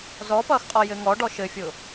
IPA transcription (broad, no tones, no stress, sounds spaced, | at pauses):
z ɔ p ʌː x qʼ ɔ j ɘ ŋ ɔ ɖ ɔ ʃ ɘ fʲ ʊ